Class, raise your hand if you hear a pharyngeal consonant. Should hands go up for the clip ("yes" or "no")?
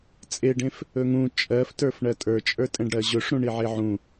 yes